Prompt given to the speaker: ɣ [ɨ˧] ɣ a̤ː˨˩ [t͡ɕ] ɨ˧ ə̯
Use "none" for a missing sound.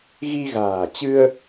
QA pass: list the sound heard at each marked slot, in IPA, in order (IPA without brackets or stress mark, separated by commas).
i˧, t͡ɕ